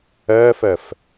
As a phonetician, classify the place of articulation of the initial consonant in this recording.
labial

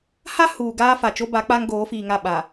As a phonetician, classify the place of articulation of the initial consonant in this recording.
glottal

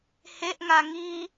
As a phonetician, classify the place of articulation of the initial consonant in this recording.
glottal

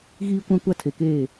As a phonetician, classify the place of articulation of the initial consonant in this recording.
velar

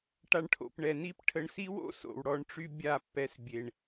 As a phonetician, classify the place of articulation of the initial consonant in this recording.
retroflex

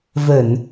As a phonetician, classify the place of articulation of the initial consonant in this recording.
labial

